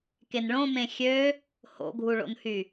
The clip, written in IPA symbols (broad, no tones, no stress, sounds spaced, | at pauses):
k e n ɭ õ m ẽ xʲ ø | h o̰ ɡʱ u ɭ o̰ n h y